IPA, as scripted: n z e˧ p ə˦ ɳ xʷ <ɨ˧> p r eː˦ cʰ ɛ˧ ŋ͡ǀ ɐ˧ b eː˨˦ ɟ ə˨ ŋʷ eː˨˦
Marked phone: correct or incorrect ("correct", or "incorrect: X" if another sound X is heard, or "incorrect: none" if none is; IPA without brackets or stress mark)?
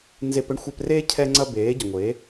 incorrect: ɛ˧